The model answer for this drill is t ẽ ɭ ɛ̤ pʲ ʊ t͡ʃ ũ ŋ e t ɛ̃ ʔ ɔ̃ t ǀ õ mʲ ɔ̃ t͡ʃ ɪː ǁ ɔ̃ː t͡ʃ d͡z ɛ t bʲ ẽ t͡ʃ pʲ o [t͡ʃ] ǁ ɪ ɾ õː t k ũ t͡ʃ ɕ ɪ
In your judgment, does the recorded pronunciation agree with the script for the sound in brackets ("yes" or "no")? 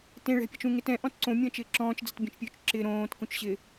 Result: yes